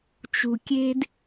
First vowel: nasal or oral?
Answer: oral